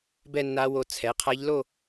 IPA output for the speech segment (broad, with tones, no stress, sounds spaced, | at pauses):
b ɛ˥˧ nː a˧˥ w o˧ t͡sʰ ɛ˩˥ qʰ a˧˥ ʎ l o˥˧